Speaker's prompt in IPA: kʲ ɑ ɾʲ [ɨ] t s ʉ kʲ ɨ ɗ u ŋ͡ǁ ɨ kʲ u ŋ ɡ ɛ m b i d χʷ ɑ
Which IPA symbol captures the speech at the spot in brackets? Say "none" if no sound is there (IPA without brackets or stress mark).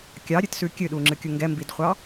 ɨ